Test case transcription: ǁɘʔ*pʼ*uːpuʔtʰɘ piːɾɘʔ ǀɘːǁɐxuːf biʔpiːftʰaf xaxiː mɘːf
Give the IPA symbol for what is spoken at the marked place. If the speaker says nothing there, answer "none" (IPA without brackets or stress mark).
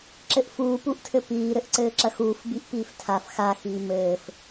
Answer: f